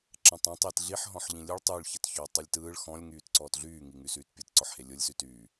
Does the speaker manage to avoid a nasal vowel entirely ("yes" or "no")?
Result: no